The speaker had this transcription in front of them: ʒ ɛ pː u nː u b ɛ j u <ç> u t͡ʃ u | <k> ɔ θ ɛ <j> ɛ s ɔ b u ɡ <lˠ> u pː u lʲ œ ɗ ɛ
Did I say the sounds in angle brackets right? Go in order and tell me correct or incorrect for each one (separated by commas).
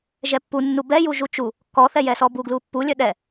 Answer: incorrect, correct, correct, incorrect